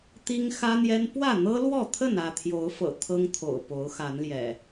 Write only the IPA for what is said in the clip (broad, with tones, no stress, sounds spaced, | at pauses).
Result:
t̪ i˦ ŋ x ä˦ n̪ j ɛ˦ n p w ä˥˨ n̪ ɤ˦ l w ɔ˥˨ t̪ʰ ə˥˨ n ä˥˨ t̪ʰ j o˨˦ ʊ̯ f ɤ̰˨˩ t̪ʰ ɤ˦ ŋ t̪ʰ o̰˨˩ ʊ̯ p o˨˦ ʊ̯ x a˨˦ n l j ɛ̰˨˩